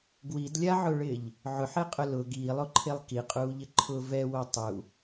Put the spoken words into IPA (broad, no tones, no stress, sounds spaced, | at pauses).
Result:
ɡ w i d lʲ a ʕ ʊ ɭ ɪː ʎ | ʕ ʊ ħ e qʼ ʊ l ʊ ɡ iː lˠ o ǃʰ e lˠ k i qʼ uː ʎ ɪ ǃʰ ʊ v ɛ w o tˤ u